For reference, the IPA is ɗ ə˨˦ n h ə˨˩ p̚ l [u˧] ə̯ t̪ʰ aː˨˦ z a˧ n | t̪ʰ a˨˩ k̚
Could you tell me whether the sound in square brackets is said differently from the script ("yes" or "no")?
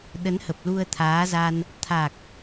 no